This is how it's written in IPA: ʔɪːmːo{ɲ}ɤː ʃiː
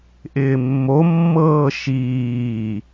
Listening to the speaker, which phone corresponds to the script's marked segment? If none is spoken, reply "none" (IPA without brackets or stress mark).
mː